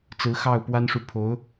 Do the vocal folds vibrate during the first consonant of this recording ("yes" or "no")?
no